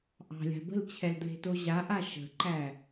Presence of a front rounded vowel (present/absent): absent